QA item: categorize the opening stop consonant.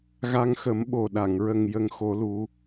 implosive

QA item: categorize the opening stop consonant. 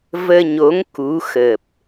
plain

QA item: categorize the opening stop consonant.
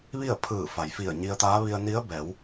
aspirated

